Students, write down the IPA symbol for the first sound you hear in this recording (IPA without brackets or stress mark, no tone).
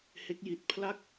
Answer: h